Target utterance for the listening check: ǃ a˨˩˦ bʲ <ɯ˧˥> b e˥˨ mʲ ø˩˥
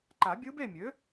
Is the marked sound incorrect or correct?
correct